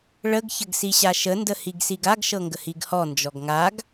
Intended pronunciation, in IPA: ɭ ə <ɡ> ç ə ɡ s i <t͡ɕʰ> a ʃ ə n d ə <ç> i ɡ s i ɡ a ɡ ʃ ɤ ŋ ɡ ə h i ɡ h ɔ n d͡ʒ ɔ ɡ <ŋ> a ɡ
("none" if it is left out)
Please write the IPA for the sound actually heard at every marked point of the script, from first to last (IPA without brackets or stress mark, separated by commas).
ɡ, ɕ, h, ŋ